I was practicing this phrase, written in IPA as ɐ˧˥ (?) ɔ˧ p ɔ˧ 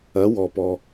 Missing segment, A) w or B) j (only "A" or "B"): A